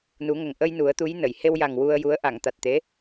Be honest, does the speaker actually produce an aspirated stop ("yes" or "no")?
no